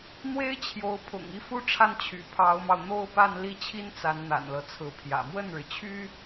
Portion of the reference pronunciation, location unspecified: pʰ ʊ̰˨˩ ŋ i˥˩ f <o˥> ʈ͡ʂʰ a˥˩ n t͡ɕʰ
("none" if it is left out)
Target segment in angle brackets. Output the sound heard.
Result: u˥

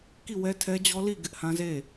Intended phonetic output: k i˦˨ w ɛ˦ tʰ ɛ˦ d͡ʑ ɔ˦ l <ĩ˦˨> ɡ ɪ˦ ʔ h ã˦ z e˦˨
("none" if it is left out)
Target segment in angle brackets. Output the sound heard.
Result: i˦˨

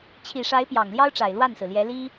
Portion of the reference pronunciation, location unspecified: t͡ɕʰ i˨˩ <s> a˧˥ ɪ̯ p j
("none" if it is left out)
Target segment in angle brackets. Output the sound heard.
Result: ʂ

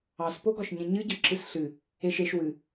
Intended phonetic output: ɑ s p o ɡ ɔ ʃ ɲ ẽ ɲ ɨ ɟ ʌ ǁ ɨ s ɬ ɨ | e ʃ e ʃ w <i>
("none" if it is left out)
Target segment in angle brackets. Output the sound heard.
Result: ɨ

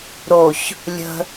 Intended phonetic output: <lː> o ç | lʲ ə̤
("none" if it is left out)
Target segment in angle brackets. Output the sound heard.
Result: ɾ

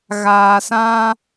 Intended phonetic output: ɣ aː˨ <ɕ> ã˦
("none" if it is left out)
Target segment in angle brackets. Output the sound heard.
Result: s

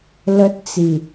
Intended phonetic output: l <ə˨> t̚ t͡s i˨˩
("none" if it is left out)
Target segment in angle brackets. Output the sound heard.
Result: ə˦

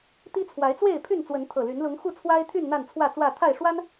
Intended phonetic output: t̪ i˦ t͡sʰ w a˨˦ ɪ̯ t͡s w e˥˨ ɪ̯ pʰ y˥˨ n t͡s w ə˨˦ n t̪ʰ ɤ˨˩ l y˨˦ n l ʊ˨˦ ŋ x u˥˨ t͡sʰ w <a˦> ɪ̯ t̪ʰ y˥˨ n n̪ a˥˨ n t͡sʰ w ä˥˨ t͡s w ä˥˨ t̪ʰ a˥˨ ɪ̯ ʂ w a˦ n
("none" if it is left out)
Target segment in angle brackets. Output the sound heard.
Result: a˦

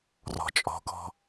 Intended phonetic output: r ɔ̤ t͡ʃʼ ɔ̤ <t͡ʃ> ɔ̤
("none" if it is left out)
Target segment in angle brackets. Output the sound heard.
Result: k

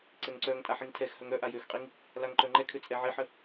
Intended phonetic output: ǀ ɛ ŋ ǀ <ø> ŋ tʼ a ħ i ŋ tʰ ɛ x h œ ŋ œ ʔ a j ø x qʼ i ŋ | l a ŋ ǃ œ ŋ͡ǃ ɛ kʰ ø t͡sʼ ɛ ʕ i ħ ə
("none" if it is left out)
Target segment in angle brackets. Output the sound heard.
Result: œ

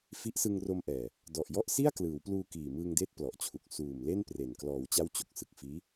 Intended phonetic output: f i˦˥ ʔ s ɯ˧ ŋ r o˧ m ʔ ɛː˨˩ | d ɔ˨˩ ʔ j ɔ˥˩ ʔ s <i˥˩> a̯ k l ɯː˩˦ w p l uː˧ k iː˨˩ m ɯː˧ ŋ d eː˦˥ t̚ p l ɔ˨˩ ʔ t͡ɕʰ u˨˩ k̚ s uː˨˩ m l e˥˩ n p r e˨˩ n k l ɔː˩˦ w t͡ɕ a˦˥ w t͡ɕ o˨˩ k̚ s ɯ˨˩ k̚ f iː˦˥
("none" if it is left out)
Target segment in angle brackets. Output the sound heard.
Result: i˥˩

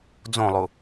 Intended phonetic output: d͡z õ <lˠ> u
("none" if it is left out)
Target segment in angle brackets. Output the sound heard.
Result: lˠ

